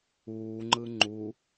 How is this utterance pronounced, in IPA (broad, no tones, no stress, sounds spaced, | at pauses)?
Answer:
uː ŋ͡ǃ ɯ ŋ͡ǃ u